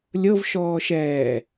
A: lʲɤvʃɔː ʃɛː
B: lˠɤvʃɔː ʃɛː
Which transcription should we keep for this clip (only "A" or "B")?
A